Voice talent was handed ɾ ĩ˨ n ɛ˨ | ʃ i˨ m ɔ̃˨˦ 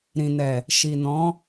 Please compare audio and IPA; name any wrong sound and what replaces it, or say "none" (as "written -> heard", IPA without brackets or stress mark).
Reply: m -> n